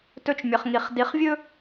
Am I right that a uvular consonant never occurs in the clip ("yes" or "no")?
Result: no